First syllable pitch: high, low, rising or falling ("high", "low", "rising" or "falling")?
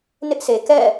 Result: high